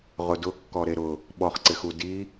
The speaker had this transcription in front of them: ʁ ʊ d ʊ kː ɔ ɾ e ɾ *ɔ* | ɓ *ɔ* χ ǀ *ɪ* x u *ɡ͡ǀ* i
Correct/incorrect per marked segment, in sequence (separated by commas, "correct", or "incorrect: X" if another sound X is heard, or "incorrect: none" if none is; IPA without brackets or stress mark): incorrect: ʊ, correct, correct, incorrect: d